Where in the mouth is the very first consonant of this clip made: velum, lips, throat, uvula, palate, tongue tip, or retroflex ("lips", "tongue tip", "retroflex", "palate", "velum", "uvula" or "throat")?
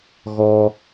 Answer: velum